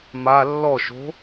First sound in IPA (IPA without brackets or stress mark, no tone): m